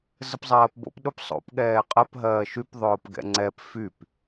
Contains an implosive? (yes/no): yes